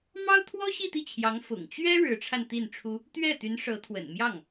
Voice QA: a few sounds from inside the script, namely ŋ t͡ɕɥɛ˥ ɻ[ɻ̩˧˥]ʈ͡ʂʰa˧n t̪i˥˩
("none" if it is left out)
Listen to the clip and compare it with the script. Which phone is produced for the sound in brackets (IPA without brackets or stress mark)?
ɻ̩˧˥